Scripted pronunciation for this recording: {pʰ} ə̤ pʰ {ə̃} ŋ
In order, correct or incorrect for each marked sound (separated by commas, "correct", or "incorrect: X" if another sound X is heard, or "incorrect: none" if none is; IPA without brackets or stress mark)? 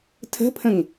incorrect: tʰ, correct